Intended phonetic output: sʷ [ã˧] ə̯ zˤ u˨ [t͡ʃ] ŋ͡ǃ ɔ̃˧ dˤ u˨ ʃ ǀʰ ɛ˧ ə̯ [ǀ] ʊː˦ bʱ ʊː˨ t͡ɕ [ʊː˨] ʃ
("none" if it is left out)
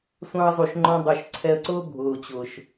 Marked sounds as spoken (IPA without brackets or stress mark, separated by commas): ɑ̃˧, ʃ, ǀ, ʊː˨